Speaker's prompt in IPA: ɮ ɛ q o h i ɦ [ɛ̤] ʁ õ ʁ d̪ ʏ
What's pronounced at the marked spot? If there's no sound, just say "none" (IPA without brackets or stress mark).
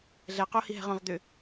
ɛ̤